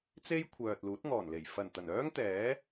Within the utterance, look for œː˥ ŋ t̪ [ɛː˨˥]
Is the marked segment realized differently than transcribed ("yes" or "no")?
no